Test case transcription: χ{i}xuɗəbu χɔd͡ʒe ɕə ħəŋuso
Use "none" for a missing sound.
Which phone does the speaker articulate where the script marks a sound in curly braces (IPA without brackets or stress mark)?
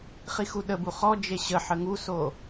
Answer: i